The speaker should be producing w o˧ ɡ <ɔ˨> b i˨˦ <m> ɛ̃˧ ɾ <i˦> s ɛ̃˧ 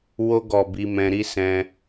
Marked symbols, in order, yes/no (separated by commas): yes, yes, yes